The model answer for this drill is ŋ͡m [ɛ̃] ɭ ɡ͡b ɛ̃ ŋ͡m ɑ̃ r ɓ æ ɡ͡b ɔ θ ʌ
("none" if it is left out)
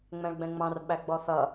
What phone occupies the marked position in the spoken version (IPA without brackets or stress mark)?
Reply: ɛ̃